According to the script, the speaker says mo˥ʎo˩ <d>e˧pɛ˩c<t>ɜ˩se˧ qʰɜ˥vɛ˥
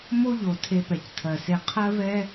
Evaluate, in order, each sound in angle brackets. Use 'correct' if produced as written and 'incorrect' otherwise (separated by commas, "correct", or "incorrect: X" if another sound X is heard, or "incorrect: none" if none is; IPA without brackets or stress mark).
incorrect: tʰ, incorrect: tʰ